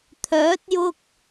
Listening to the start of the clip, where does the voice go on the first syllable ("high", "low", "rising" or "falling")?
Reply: rising